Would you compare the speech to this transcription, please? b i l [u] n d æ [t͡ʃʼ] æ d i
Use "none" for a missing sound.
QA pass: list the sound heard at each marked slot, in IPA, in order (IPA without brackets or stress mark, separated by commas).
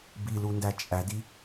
u, t͡ʃʼ